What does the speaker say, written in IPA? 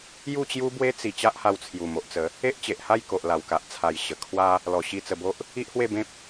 j u˥˧ t͡ɕ j u˦ b w e˦ t͡s i˨˩ t͡ɕ a˦ ʔ h a˧ w t͡sʰ j u˨˩ m o˨ ʔ t͡s ə˨˦ | e˦ ʔ t͡ɕ e˨ ʔ h a˥˧ j k o˨ ʔ l a˨˩ w k a˨ ʔ t͡sʰ a˨˩ j ɕ ə˨˩ kʰ w a˦ | l ɔ˨˩ ɕ i˧ t͡s ə˧ b o˦ ʔ | i˦ ʔ h w e˥˧ b ẽ˦ p̚

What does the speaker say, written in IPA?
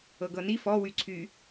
ɤ ɡ ɤ n i f ɔ w y ǀʰ y

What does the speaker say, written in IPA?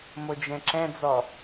m o d͡ʒ ɛ̃ ǁ ɛ̃ d͡z ɔ

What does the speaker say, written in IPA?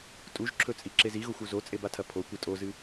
tʼ u ʒ ǁʰ ɵ t͡sʼ i ǁ e z i ɣ o xʷ u z o t͡sʼ e b a tʰ ɐ pʰ o kʷ ɨ tʼ o z ɨ

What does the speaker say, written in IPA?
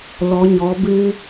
l ɔ˧˥ ɲ ɔ˧˥ b ɨ˥

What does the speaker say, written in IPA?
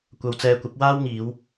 kʷ ɐ˧ w t͡s ɛː˧ kʷ ɐ˨˥ p̚ w aː˥ w ŋ iː˨˧ w

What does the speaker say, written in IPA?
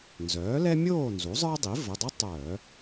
n z œː˩˥ l ɛ˥ mʲ oː˥˨ n z u˩˥ zˤ ə˞˥ dˤ i˩˥ v ə˩˧˩ dˤ ə˥ tˤ œː˧˩˧

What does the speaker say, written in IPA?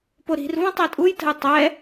p o ɾ i̤ r v ũ tˤ ɛ tʼ u j t ə̤ j tˤ ɛ

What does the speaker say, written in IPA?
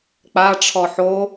k͡p a ʈ͡ʂʰ ɔ ħ o

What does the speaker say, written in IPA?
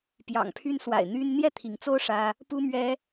p j ɑ̰˨˩ ŋ pʰ y˦ n s w a̰˨˩ ɪ̯ n̪ y˦ n n̪ j ɛ˥˨ t̪ʰ i˨˦ ŋ t͡s o˦ ʊ̯ ʂ ä˦ | p u˦ m ɥ ɛ˦

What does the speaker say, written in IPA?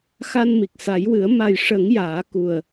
x a˧ n m i˨˩ k̚ s a˨˩˦ j w ɨ˨˩˦ ə̯ m a˨˩ j ʂ ə˨˩˦ ŋ j aː˨˩˦ k u˨˩ ə̯

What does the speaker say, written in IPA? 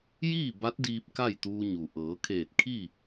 j iː˥˨ b a˧˥ t̚ d iː˧ p̚ k a˥˨ j t̪ uː˧ ɲ u˩ ʔ ɤː˩˧ kʰ eː˧˩ t̚ kʰ i˥˨

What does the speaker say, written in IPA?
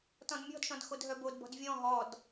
t ɔ̃ d mʲ ɔ̤ d ʃ ɔ̃ d x o d ɦ œ b o d b ɔ̤ d vʲ ɔ̃ ɦ ɔ d

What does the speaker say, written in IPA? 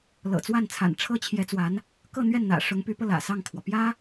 l ɤ̰˨˩ t͡s w a˥˩ n t͡sʰ a̰˨˩ n ʈ͡ʂʰ ɤ˥ t͡ɕʰ j ɛ˧˥ t͡s w a˧˥ n | k ɤ˥˧ n̪ ɥ ɛ˥˩ n n̪ ä̰˨˩ ʂ ʊ˧˥ ŋ p y˧˥ p ɤ˧ l ä̰˨˩ s ɑ˥˩ ŋ kʰ w ɔ˩ p j ä˥

